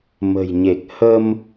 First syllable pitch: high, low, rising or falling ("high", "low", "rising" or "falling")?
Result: low